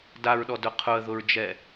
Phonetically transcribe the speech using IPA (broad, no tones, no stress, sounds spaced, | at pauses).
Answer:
d a ɹ ɗ ɔ d ʊ qʰ ʊ ə̯ ð ʊ ɹ d͡ʒ ɛ